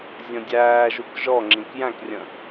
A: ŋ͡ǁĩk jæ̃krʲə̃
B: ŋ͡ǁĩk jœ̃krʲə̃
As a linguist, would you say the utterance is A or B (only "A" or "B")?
A